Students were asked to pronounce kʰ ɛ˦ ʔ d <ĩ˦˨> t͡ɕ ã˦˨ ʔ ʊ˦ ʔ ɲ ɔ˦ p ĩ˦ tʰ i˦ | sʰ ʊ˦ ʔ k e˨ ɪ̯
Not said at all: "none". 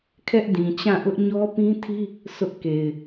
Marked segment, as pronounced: ĩ˨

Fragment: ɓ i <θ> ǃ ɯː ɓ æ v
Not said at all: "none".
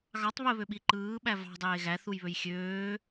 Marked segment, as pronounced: none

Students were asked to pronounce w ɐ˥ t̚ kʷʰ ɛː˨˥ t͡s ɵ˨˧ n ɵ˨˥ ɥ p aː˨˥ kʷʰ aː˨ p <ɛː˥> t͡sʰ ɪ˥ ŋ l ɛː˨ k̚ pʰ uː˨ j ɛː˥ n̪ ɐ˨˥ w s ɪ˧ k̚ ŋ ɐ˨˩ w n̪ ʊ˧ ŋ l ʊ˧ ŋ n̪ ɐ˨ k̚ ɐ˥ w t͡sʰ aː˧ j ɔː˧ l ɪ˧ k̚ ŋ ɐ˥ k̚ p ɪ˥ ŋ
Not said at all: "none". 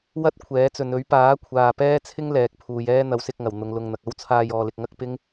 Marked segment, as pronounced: ɛː˥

